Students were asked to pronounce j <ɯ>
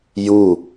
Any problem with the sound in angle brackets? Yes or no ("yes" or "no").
yes